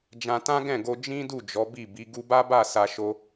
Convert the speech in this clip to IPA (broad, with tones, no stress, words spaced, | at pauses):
d͡ʒã˧tã˦ɡɛ̃˦˨ɡo˧ d͡ʒĩ˦du˦˨ d͡ʒɔ˨˦bi˦˨bi˨˦ ɡu˧ba˦ba˦˨ sa˧ʃo˧